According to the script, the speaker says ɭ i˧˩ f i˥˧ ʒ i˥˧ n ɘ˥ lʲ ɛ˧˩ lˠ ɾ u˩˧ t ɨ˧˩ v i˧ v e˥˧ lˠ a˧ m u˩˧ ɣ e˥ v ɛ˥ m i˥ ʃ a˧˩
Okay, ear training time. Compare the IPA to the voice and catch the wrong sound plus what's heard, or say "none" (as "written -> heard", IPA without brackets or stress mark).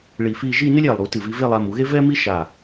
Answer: none